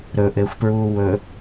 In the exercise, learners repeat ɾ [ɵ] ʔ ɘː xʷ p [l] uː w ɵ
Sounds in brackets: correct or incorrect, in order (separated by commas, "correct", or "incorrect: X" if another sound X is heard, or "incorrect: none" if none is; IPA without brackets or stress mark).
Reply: correct, incorrect: ɹ